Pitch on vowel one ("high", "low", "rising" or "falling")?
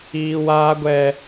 high